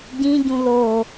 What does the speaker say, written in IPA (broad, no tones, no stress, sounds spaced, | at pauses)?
ɟ ĩ ɟ ũ l o